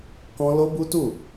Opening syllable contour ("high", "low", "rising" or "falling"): high